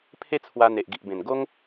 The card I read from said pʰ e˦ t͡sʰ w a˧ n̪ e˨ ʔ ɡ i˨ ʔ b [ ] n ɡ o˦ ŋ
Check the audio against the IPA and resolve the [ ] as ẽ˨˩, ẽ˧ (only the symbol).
ẽ˨˩